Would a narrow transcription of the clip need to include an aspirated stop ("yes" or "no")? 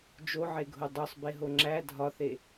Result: no